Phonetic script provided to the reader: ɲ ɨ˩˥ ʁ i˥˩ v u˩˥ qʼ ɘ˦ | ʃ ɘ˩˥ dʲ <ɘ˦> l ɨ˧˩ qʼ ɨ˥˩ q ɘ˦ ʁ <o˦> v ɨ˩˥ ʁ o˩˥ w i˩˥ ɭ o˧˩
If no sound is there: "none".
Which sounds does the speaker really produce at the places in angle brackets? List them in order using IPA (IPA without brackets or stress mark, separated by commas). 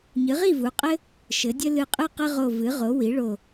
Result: ɘ˦, o˧˩